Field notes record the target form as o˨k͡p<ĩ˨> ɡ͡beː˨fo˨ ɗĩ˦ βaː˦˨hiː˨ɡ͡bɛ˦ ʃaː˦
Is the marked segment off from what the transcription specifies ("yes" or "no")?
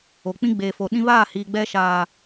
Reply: yes